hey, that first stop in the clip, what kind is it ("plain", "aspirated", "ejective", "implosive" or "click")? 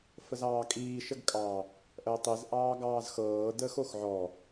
ejective